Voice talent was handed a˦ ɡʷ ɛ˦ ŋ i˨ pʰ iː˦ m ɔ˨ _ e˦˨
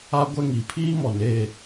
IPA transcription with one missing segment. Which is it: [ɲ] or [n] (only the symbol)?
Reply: n